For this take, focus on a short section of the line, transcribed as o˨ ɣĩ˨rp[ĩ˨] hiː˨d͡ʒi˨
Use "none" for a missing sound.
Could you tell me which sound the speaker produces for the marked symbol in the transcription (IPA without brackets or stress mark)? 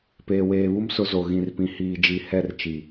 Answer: ĩ˨